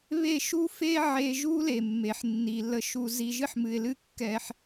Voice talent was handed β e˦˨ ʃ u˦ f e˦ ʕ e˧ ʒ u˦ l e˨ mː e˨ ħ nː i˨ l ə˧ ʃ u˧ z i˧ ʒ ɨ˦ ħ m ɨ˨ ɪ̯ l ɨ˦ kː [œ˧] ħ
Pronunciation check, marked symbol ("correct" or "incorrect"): incorrect